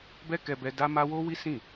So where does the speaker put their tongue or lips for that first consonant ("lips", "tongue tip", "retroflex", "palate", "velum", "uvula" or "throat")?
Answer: lips